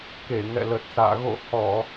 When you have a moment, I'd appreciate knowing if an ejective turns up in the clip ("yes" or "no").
no